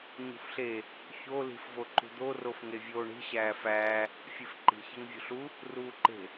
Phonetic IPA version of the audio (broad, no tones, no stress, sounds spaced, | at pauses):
ɲ ṳ f ɬ e | ç o l i̤ f v o ǃ ṳ d̪ o r o f ŋ e vʲ oː ɳ i̤ ɕ æː f æː | fʲ e f ǃ i̤ ç e ŋ vʲ ṳ ɬ u | r uː ǃ e̤